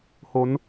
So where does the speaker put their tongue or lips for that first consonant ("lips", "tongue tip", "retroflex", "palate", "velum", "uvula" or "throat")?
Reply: throat